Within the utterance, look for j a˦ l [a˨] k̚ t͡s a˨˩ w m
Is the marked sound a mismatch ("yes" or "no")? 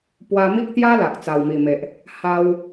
no